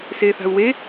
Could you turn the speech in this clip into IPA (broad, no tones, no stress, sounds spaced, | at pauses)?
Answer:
s eː θ a̤ u̯ w e